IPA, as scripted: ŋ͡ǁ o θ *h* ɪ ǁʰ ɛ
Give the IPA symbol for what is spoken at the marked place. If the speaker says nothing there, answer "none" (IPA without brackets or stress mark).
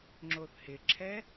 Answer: h